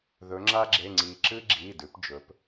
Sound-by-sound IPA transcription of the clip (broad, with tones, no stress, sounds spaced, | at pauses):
ð ɵ˩˧ ŋ͡ǁ a˦ ɡ͡ǁ e˩˧˩ ŋ͡ǀ iː˩ ǁ ɨ˦ ɡ͡ǁ iː˩˧˩ d ʉ˩˧ p d͡ʒ ɵ˩˧ p